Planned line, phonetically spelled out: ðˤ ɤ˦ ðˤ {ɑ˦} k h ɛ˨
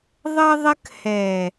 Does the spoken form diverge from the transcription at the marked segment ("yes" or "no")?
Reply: yes